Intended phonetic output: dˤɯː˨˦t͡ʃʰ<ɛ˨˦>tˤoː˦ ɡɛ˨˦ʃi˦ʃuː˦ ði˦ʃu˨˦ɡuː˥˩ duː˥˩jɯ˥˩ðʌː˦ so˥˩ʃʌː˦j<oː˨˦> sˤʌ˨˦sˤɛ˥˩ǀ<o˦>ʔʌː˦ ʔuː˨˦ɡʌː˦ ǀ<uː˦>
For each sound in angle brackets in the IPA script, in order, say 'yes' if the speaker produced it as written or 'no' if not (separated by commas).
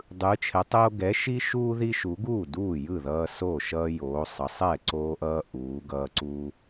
yes, yes, no, yes